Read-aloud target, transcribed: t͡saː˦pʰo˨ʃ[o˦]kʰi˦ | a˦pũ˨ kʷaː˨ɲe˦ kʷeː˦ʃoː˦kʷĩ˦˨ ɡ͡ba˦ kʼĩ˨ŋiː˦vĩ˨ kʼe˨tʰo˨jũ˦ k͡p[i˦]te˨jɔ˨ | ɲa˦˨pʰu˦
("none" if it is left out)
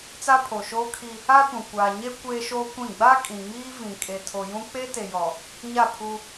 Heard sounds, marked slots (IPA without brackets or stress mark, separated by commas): oː˦, e˦